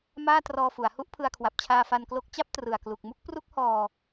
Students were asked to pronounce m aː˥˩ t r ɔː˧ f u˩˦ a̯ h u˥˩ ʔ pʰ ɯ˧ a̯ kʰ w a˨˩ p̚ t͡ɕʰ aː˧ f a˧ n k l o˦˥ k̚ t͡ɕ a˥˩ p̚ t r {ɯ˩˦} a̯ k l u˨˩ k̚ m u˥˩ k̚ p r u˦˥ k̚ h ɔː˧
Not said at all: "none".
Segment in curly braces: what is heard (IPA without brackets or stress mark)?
ɯ˨˩